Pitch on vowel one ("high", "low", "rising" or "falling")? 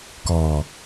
low